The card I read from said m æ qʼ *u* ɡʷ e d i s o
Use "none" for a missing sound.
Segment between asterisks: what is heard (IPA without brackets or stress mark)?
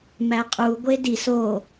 u